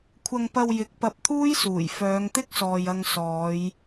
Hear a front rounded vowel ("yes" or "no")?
yes